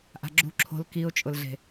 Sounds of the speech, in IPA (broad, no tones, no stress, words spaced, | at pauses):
ʔa̤ɡ͡ǁṳ ǁʰo̤l kiʊ̯t͡ʃʼʊlɮe̤